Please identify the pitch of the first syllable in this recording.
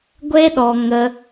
high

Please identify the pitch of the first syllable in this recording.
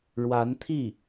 rising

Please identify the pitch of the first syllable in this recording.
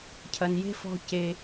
high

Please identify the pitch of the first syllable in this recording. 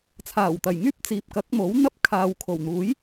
low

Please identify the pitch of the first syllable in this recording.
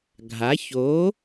rising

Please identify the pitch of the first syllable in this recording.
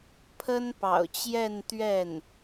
high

